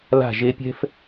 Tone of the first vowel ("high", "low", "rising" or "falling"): falling